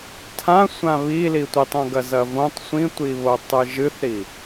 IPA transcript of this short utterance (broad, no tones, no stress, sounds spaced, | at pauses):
tʰ ã sʷ ã β i l i tʷ i tˤ õ ɡ ɐ z ɐ v õ tˤ sʷ ĩ tʷ i β o tˤ ɨ ʒ ɨ θ ɾ i